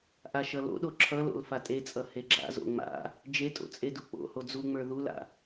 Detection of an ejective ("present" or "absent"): present